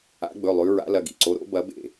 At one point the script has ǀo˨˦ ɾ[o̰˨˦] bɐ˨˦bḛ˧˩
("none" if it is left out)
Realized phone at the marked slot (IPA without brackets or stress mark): o̰˨˦